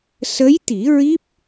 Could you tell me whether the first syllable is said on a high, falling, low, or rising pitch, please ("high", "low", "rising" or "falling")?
rising